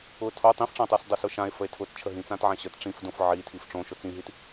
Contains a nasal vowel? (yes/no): yes